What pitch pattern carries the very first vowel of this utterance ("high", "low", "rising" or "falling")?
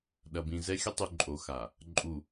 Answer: low